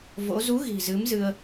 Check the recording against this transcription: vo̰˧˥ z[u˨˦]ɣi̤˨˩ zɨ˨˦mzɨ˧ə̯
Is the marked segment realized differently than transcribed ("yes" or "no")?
no